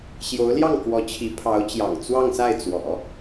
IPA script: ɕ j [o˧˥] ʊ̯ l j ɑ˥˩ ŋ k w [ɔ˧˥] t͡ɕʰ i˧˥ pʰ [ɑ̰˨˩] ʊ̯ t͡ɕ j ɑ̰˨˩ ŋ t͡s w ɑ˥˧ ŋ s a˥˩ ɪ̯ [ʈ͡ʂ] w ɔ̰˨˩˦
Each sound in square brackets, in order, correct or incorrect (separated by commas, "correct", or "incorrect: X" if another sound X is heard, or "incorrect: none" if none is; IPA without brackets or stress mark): correct, correct, incorrect: ɑ˧˥, incorrect: t͡s